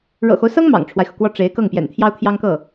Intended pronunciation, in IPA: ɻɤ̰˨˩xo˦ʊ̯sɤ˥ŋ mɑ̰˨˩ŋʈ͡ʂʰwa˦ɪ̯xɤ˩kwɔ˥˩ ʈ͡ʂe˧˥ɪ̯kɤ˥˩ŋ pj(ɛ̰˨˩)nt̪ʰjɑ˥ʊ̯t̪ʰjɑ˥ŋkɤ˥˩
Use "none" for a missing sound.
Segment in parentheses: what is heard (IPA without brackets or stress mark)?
ɛ̰˨˩